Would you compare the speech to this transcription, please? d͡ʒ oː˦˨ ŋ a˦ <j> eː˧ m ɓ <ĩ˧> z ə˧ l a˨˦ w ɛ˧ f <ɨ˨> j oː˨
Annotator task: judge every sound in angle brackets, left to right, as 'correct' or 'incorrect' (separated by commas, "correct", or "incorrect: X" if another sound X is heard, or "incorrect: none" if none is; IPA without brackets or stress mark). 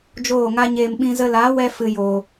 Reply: incorrect: ɲ, correct, incorrect: ɨ˧